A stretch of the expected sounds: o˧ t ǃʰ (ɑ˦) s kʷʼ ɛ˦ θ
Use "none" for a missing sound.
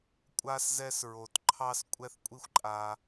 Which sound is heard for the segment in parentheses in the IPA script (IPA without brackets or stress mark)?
ɑ˦